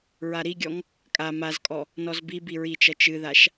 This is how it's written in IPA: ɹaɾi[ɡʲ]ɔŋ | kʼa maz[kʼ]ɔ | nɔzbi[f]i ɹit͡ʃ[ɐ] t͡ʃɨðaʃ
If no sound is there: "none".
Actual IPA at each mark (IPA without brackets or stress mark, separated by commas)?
ɡʲ, kʼ, b, ɐ